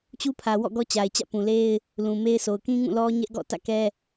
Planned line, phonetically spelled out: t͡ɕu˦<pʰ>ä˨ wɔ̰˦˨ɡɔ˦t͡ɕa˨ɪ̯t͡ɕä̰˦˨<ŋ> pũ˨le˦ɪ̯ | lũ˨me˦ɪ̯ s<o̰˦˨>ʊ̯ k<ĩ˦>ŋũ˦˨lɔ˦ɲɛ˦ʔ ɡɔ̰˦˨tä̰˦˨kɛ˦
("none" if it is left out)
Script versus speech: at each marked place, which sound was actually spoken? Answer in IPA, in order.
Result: pʰ, none, o˨, ĩ˦

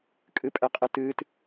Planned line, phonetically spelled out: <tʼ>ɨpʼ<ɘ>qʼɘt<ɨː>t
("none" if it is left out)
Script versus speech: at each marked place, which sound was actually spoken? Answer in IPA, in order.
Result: kʼ, ɛ, ɨː

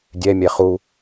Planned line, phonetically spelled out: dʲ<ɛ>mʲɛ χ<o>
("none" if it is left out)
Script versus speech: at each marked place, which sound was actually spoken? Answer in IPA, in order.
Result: ɛ, u

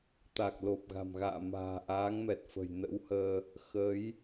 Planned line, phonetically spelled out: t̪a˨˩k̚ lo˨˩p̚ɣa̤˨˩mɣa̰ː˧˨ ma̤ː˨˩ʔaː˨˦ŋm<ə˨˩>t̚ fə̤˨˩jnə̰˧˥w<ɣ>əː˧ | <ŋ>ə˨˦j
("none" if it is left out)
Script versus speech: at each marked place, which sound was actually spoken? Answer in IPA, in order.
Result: ɛ˨˩, h, x

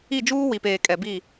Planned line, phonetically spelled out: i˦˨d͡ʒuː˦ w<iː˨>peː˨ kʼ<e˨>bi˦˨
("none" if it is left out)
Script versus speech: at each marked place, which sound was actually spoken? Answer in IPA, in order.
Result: i˨, ɛ˨

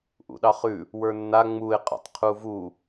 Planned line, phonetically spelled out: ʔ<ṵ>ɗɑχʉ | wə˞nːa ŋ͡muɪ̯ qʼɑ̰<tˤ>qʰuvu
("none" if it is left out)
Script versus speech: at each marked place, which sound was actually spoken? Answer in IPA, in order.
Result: ṵ, tˤ

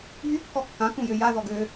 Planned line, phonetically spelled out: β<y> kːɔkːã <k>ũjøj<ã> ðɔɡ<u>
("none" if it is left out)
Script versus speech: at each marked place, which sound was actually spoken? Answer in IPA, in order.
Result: y, k, a, ø

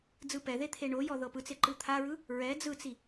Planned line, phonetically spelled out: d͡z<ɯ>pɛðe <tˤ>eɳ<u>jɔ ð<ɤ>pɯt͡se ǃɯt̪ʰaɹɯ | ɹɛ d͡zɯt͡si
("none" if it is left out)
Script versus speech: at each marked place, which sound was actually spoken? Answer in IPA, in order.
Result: ɯ, t̪ʰ, o, ɤ

